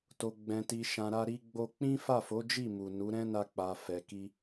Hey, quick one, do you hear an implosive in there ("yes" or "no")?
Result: no